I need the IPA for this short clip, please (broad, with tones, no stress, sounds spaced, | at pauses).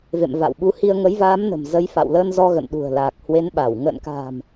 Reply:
v ḛ˧˨ m v a̰˧˨ w ɓ u˨˦ h i˧ ə̯ ŋ ə˨˦ j v aː˨˦ m n ə̤˨˩ m z ə˨˦ j f a̰˧˨ w l əː˧ n z ɔ˧ ɣ ə̰˧˨ n ɗ ṳ˨˩ ə̯ l aː˨˩ k̚ h w e˨˦ n ɓ a˧˩ w ŋ ə̰ː˧˨ n k a̤ː˨˩ m